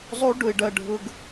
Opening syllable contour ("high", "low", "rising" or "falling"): high